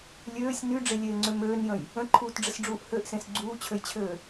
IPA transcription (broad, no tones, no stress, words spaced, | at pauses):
lʲøːsʲ nyɖ͡ʐelʲeːŋ͡ǀø møːnjə̃j | ə̃ǃʰuːtɖ͡ʐəsɖ͡ʐuːʔ høʔsẽs ɡ͡ǀuːt͡ɕʰøjt͡ɕʰøː